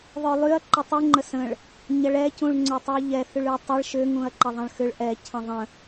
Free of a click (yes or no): no